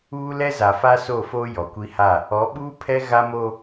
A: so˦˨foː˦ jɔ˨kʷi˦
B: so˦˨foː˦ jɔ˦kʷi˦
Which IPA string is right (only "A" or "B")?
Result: A